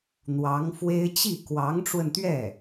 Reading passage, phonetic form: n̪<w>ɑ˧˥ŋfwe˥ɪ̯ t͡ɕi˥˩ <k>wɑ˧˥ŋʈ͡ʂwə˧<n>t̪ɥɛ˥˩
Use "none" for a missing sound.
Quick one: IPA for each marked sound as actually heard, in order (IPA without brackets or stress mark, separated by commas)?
w, k, n